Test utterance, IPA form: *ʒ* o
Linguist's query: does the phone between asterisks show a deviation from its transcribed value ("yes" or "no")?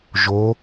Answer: no